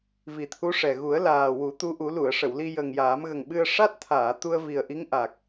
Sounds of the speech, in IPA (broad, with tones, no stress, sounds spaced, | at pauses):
v i˨˩ t̪ʰ u˧˥ ʂ ɛ˨˩ ɣ u˨˩˦ ə̯ l aː˨˩ w u˨˩˦ t̪ u˧˥ ʔ u˨˩˦ l u˨˩˨ ə̯ ʂ ə˨˩˨ w l i˧ j ə˨˩ ŋ j aː˨˩˦ m ɣ ə˨˩ ŋ ɓ ɨ˧ ə̯ ʂ a˦˥ t̚ t̪ʰ aː˨˩˨ t̪ u˧ ə̯ v i˨˩ ə̯ ʔ i˧˥ ŋ ʔ a˨˩ k̚